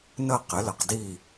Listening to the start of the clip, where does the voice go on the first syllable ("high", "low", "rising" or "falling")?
falling